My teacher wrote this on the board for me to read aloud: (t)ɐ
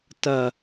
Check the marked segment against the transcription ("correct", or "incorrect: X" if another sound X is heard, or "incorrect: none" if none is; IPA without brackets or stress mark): correct